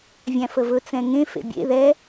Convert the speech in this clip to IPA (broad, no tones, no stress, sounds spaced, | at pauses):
vʲ æ̃ f ə v ɵ t͡s ɛ̃ ŋ ẽ f ḛ bʲ ḛ ð ɛ